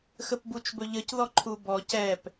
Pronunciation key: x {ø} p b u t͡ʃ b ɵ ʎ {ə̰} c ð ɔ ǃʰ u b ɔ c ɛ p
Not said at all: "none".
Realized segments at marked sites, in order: ə, ə

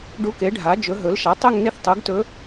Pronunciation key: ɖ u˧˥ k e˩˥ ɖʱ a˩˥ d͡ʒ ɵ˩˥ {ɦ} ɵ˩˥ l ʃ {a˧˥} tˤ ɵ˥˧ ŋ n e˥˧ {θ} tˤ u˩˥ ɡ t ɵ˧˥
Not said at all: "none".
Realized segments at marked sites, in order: ɦ, a˩˥, θ

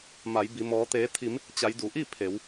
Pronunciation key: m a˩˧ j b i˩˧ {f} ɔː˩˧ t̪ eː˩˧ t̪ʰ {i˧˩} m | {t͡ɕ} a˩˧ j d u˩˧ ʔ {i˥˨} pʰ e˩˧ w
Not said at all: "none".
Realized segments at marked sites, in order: m, i˩˧, t͡ɕ, i˥˨

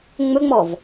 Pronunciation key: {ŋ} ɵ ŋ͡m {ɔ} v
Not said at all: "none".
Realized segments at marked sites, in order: ŋ͡m, ɔ

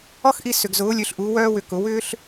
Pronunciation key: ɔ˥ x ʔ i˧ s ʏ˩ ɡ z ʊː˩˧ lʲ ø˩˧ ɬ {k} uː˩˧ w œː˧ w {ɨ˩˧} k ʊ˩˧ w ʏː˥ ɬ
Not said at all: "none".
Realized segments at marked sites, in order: ʔ, ʏ˩˧

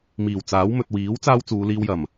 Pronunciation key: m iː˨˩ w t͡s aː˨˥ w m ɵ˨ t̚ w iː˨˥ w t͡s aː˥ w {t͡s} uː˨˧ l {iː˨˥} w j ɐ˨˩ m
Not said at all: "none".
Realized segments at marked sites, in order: t͡s, iː˧

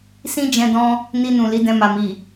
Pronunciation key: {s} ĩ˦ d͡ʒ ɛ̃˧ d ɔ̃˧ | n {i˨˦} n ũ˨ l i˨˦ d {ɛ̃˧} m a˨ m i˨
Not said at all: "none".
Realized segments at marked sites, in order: s, i˧, ɛ̃˧

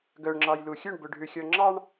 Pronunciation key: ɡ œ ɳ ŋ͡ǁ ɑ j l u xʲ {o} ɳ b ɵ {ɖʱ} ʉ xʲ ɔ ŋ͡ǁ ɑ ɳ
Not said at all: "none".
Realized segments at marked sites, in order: ɵ, ɖʱ

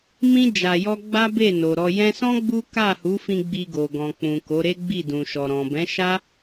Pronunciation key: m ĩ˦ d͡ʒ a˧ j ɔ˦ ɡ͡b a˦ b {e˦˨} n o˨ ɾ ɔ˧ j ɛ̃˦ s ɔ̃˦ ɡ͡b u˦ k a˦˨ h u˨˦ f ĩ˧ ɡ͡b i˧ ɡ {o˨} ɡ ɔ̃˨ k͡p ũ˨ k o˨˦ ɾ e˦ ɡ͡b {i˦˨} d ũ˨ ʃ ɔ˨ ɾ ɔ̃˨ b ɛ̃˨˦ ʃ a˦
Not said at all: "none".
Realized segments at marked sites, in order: e˦˨, o˨, i˦˨

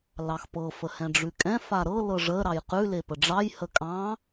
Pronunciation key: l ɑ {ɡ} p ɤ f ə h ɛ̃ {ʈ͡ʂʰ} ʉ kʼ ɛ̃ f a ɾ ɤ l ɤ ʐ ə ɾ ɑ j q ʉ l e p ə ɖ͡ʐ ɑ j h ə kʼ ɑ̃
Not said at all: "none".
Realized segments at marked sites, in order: x, ɖ͡ʐ

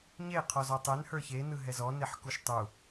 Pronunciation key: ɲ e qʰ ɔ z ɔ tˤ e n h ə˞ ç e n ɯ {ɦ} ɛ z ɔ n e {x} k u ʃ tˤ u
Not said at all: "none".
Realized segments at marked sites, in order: ɦ, ħ

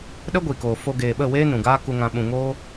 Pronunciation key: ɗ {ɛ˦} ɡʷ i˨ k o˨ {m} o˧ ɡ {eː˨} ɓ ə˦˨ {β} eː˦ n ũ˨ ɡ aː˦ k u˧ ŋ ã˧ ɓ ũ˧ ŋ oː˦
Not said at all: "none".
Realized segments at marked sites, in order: ə˦, f, eː˨, w

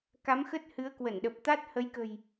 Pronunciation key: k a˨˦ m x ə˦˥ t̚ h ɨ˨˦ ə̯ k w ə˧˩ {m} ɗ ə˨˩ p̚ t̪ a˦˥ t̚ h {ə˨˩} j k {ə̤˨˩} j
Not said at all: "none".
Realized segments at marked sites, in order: n, ə˨˦, ə̤˨˩

